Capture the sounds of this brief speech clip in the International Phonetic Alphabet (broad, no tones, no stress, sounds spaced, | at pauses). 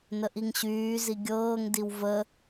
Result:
n ə ʔ i ŋ ɕ yː z i ɡʲ ɤː ŋ d i w v ə